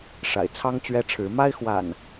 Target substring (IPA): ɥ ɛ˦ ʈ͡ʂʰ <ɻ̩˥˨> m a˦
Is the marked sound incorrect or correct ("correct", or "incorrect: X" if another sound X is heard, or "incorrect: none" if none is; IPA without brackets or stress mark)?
incorrect: ɻ̩˨˦